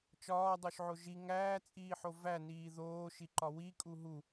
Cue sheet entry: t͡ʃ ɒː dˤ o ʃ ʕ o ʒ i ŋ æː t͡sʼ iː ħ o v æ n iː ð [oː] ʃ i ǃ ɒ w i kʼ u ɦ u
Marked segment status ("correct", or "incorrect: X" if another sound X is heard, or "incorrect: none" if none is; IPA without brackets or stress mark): correct